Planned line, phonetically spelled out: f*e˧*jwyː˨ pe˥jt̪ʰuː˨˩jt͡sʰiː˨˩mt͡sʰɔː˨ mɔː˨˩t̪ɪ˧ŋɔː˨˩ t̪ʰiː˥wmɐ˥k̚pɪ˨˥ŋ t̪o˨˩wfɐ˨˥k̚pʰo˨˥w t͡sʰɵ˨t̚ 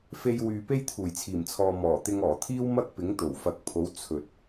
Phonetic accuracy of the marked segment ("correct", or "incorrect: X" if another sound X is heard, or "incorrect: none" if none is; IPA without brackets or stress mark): correct